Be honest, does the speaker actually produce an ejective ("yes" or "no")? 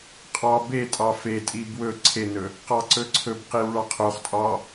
yes